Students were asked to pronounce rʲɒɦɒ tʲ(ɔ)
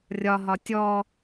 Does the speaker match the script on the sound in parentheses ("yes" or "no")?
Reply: yes